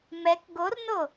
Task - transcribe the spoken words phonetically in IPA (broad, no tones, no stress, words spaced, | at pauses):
mɛk ɡorno